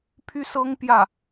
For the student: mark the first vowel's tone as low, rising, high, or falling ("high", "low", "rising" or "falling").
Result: high